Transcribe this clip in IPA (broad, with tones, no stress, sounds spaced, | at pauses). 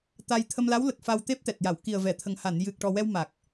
t̪ a˧ j t̪ʰ ə˧ m l a˧˥ w l ə˨˩ k̚ f a˧ w t̪ e˦˥ p̚ t̪ ɛ˨˩ t̚ j a˨˩˨ w k i˨˩ ə̯ v ɛ˨˩˨ t̪ʰ ə˨˩ ŋ h a˨˩˨ n j ɨ˨˩ k̚ ʈ ɔ˨˩ w ɛ˧ w m a˨˩ k̚